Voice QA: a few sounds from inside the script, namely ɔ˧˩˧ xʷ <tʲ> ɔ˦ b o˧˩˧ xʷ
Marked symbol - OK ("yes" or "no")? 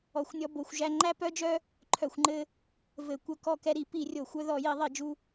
no